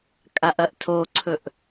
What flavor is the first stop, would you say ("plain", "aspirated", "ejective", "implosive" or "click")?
ejective